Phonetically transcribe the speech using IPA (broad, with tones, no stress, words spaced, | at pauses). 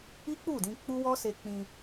i˦k͡pu˦˨dĩ˧ k͡pu˦wɔ˦se˧ k͡pĩ˧